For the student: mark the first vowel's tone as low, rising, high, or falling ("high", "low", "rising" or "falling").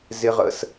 high